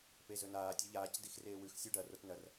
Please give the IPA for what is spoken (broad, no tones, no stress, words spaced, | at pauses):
pezɵnaː tʲɐʎaːc dixreːwʉx sʲuɖɐ rotnɐr